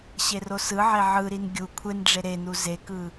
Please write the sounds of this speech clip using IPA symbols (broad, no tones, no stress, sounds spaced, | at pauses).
ɕ e r o s ɯ ʕ e ʕ ɯ ɾ i n ɡʲ u kʷʰ e n ɖ͡ʐ e ɾ e n u z e k ɯ